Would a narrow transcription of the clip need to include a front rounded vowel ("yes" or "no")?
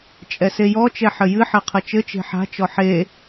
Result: no